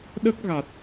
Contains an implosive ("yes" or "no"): yes